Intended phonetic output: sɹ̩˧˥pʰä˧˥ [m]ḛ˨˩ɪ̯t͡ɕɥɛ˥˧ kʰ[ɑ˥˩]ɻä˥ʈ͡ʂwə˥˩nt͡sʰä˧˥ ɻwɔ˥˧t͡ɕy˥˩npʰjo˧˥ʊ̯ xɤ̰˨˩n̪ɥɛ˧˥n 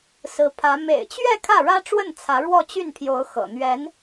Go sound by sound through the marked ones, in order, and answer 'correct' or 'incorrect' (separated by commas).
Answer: correct, incorrect